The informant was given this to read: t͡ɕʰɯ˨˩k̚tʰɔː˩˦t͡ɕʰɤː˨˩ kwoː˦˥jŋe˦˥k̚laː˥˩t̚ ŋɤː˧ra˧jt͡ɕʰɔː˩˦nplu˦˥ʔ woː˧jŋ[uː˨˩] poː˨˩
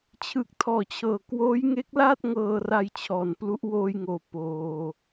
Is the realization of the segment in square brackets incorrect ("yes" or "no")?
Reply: yes